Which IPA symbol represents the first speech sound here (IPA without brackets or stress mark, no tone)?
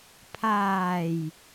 pʰ